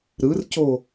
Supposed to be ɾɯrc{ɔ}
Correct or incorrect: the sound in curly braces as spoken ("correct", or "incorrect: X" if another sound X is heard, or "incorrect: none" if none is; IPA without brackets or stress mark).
incorrect: o